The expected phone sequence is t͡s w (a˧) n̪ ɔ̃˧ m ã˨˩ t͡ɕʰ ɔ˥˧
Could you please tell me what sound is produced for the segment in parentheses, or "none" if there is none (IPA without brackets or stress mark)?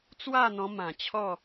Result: a˥˧